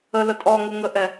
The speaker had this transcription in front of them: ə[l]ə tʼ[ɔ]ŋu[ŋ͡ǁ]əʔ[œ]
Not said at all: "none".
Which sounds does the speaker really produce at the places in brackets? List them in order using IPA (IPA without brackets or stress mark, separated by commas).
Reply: l, ɔ, ŋ, ɛ